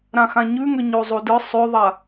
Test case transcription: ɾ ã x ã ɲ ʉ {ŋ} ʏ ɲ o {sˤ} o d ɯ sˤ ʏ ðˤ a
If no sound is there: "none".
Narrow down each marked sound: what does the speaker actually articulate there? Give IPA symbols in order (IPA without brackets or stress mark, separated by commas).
ŋ, zˤ